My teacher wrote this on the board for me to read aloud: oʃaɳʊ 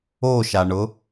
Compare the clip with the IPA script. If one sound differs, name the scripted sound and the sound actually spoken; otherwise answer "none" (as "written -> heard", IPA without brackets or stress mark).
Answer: none